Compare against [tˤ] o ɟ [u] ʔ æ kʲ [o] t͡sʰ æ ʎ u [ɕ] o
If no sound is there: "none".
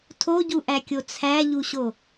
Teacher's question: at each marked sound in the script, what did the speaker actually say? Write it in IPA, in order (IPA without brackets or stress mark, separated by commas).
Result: tʰ, u, o, ɕ